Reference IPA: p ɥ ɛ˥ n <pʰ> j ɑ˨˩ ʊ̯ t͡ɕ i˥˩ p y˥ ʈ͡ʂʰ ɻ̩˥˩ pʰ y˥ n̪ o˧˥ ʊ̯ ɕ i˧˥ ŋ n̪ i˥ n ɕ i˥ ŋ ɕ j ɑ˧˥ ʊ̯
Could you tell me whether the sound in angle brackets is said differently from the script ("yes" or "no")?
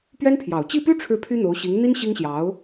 no